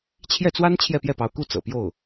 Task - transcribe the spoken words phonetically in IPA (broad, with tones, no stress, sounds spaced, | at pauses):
t͡ɕʰ j ɛ˥˩ t͡s w a˥ n t͡ɕʰ j ɛ˥˧ p j ɛ˥˩ p ɑ˧˥ ʊ̯ k u˥˩ t͡s ɤ̰˨˩ p j o˥˩ ʊ̯